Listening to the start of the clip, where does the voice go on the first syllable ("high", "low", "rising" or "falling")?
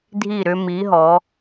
falling